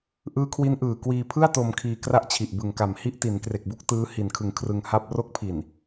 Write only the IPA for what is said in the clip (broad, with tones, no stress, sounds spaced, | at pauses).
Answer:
ʔ ɯː˦˥ kʰ w i˦˥ n ʔ ɯː˨˩ k w iː˧ pʰ ɯ˥˩ a̯ t o˧ m kʰ iː˧ k r a˥˩ ʔ t͡ɕʰ i˨˩ ʔ b ɯ˨˩ ŋ k a˨˩ m h i˦˥ ʔ t i˩˦ n k r e˨˩ k̚ b u˥˩ k̚ t ɯː˦˥ h i˨˩ n kʰ ɯ˨˩ ŋ kʰ r ɯ˧ ŋ h a˥˩ p̚ r o˦˥ k̚ pʰ i˨˩ n